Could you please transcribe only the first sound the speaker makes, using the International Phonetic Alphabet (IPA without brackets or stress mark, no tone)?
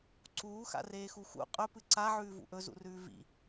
ǀ